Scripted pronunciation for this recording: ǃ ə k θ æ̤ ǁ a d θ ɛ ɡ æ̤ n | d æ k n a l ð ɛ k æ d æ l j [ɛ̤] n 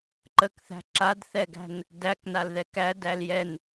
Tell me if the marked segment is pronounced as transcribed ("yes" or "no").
no